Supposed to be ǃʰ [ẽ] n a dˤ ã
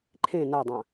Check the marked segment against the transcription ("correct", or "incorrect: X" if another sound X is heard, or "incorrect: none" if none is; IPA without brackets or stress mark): correct